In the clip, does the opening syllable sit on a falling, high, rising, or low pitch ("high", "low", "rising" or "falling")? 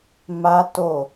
high